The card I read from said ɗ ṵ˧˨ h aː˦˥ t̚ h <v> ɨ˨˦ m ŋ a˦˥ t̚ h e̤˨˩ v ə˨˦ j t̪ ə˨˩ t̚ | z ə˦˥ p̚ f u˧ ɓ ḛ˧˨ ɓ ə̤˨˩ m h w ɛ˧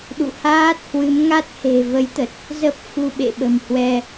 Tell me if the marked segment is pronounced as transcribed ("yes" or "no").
no